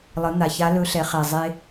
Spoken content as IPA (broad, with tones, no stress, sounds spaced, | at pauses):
lˠ ə˩˧ n̪ a˩ ç a˧˥ l ɵ˧˥ ɬ ɛ˩˧ χ ɛ˩ zˤ e˧